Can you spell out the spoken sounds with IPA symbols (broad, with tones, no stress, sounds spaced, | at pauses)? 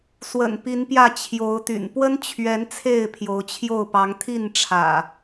s w ə̰˨˩ n p i˨˦ n p j ä˥˨ t͡ɕʰ j o˨˦ ʊ̯ t̪ y̰˨˩ n p w ə˦ n t͡ɕʰ ɥ ɛ˨˦ n t͡sʰ e˥˨ ɪ̯ pʰ j o˨˦ ʊ̯ t͡ɕʰ j o˥˨ ʊ̯ p ɑ˨˦ ŋ t̪ʰ i˥˨ n ʈ͡ʂʰ ä̰˨˩